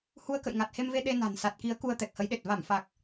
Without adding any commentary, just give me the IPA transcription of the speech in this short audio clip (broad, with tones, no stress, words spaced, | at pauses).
hu˧ə̯kə̰˧˨jŋa˨˩t̚ he˧mve˧ ɗe˧na̤˨˩n sa˨˩t̚ki˨˦ə̯ ku˧ə̯t̪ɛ˨˩k̚hə˨˦jɗe˨˩t̚ va˧˩mfa˨˩k̚